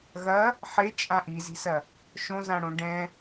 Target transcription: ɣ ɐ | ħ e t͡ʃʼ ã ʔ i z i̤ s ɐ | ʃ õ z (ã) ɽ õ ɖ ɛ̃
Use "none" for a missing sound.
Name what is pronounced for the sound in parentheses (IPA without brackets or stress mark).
ã